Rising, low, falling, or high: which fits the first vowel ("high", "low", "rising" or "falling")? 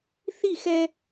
falling